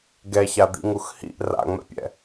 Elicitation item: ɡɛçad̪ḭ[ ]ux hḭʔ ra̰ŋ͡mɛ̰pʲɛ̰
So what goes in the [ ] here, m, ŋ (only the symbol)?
ŋ